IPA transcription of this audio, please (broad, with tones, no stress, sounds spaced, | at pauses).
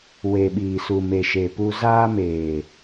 w e˨ ɓ iː˨ s u˨ m e˨ ʃ e˨ p u˧ z aː˧ m eː˨